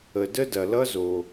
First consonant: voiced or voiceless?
voiced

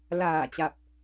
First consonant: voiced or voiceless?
voiced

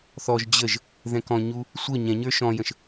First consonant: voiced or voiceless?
voiceless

